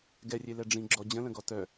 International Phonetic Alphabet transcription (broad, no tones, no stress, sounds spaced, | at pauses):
ɡ ɛ rʲ e l ɛ ɖ͡ʐ ĩ ɡ͡ǁ ɔ d͡ʑ ə̃ l ə̃ ɡ ɔ t œ